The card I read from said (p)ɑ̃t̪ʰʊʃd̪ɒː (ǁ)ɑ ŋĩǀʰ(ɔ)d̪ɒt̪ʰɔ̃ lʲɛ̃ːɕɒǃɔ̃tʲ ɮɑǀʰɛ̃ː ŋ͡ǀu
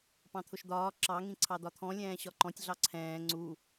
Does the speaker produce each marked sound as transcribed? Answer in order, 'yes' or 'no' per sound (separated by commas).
yes, yes, no